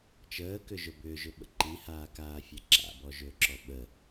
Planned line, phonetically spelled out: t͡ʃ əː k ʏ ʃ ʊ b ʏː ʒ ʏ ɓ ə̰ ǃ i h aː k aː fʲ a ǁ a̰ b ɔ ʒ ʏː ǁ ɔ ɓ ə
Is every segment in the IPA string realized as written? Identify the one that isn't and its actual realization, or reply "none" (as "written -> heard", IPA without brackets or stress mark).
ʃ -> ʒ